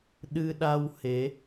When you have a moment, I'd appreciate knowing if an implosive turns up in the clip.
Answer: yes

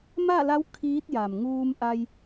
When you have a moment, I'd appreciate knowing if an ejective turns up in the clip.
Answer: no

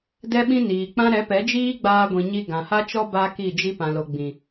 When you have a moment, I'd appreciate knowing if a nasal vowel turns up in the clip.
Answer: yes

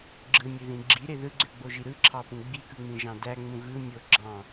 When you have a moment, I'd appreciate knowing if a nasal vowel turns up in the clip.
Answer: yes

